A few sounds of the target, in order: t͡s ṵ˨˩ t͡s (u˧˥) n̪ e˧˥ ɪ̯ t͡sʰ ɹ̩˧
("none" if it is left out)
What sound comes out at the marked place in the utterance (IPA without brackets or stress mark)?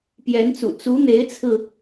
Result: u˧˥